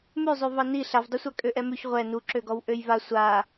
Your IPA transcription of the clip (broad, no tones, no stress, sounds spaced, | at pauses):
m ʉ zˤ ʉ v ɑ n i ɬ a v dˤ u sʷ a kʼ ø ʔ ɛ m ʉ ç ʁʷ ɛ n u ǁ ø ɡ ɔ w ʔ ø j v a sʷ a